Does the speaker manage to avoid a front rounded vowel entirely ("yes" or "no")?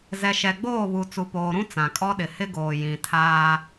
yes